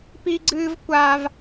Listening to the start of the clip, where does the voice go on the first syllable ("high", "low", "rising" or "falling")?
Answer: high